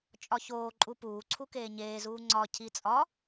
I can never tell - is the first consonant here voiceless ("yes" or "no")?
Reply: yes